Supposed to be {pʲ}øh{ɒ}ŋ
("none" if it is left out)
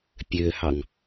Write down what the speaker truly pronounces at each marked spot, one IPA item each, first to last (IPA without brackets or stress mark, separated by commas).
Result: pʲ, ɑ